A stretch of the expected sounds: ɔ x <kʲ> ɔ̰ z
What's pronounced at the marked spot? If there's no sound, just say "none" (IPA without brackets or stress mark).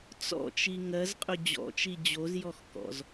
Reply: k